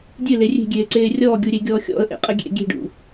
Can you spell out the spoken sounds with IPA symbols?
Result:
dʲɨle rʲe̤ɡʲeːǀeː rʲɔːɡʲuɾʲeɡʲɔː xʲɔ̰ə̯ʔḛqʼə ɡʲḛ ɡʲe̤ɖṵ

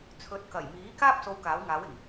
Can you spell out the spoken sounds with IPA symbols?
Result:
t͡sʰɵ˨˥t̚kɐ˨˩jmiː˨˥ kaː˥p̚so˨˧w kaː˨˥wŋaː˨˥wɪ˨˩ŋ

